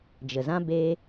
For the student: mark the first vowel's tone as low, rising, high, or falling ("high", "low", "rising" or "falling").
low